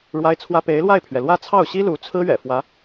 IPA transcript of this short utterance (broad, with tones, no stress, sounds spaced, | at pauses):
ɻ w a˥ ɪ̯ t͡sʰ w ä˥ p e˧˥ ɪ̯ l w a˥˩ ɪ̯ pʰ ɥ ɛ˩ l w ä˥˧ t͡sʰ ɑ˥˩ ʊ̯ ɕ i˥ l u˧˥ t͡sʰ ɹ̩˥ ɥ ɛ̰˨˩ f w ä˧˥